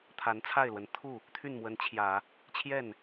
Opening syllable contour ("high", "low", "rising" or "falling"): rising